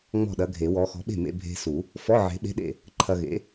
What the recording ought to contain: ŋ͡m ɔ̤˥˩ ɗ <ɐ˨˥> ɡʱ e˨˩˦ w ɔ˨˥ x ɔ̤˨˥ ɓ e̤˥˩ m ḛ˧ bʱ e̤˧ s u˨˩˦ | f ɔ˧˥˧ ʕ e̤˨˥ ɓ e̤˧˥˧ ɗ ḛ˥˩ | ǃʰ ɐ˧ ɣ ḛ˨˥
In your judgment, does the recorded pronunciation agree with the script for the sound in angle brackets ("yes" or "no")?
yes